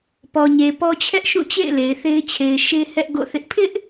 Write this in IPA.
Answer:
p ɔ˨ ɲ e˨ p ɔ˦ t͡ɕʰ ɛ˦ ʔ ʃ ũ˦˨ t͡ɕ ḛ˦˨ ɪ̯ l e˨ ɪ̯ θ e˦ ɪ̯ t͡ɕʰ e˨ ɪ̯ ʃ e˦ h ɛ˦ ʔ ɡ o̰˦˨ θ ɪ˦ ʔ pʰ ɪ˦ ʔ

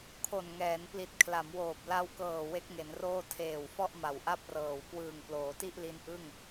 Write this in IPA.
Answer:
kʰ o˨˩ n ŋ ɛː˩˦ n p l i˨˩ t̚ kʰ l a˩˦ m w oː˨˩ p̚ l a˧ w k ɤː˨˩ w e˦˥ k̚ ŋ e˩˦ n r oː˥˩ tʰ eː˨˩ w f ɔ˥˩ ʔ m a˨˩ w ʔ a˥˩ p̚ r ɤː˨˩ w k w ɯː˨˩ ŋ p l oː˩˦ t i˥˩ ʔ l i˦˥ n ʔ ɯ˥˩ ŋ

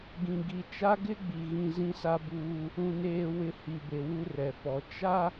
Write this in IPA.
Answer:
ɡ ĩ˨ ɡ i˨ t͡ʃ a˦ ɡ ɪ˦ ɡ͡b i˨ ɣ ĩ˨ z ĩ˦ s a˦ b uː˦ | ũ˨ n eː˨ w ɪ˨ h i˨ b e˨ w u˦ r ɛ˨ f ɔ˨ t͡ʃ a˦

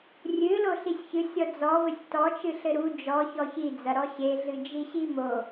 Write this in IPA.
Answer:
rʲ ɨ l o ɬ i sʲ ç ɨ sʲ ɔ d͡z ɔ v ɘ sʲ t ɔ t͡ʃ ɨ ɬ ɘ ɾ u d͡ʒ ɔ ç ɔ ç i d͡z ɐ ɾ ɔ ɕ e ɮ ɨ d͡ʒ i ɕ i m o

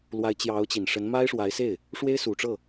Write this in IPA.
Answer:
l w a˧˥ ɪ̯ t͡ɕ j ɑ˧˥ ʊ̯ t͡ɕ i˨˩ n ʂ ə˧˥ n m a˥ ɪ̯ ʂ w a˧˥ ɪ̯ s e˥˩ ɪ̯ | ʂ w e˥ ɪ̯ s u˨˩ ʈ͡ʂ ɤ˥˩

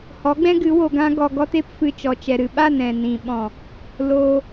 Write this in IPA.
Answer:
h ɔ˨˦ ɡ͡b ɛ̃˦ ɡ ɨ˨˦ w o˧ ɡ ã˦ ɡ ɔ˧ ɡ ɔ˦ t e˦ p f ɨ˧ t͡ʃ ɔ˨ t͡ʃ ɛ˨ ɾ ɨ˨ ɓ a˦˨ n ɛ̃˨ n ĩ˨ ɓ ɔ̃˨ | l oː˧

